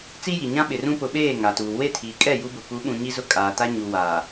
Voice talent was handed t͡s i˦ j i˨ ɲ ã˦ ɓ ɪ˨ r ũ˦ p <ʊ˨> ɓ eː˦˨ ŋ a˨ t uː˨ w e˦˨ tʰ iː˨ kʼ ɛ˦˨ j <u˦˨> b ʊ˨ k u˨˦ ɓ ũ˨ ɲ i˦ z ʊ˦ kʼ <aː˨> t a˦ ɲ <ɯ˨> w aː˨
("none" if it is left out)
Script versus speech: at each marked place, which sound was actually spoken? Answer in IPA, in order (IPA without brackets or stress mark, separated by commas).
ʊ˨, u˦, aː˨, u˨